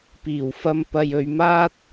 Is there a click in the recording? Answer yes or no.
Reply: no